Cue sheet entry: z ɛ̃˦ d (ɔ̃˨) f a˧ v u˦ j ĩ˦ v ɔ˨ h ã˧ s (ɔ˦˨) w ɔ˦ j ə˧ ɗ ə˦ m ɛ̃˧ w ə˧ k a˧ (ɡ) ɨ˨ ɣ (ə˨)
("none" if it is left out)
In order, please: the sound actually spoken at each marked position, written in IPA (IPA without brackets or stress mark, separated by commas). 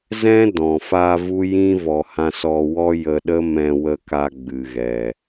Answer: ɔ̃˨, ɔ˧, ɡ͡b, ɛ˨